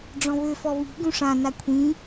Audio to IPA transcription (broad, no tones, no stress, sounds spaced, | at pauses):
ɖ͡ʐ ɔ̃ β ø f ɔ β i̤ ɡ ũ ʂ ã n a kʷʰ ĩ